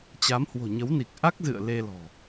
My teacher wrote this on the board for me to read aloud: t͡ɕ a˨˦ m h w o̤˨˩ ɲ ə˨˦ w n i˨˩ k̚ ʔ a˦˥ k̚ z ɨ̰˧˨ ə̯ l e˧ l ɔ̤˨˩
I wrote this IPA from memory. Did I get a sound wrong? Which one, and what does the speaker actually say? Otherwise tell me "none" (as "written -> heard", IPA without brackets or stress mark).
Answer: none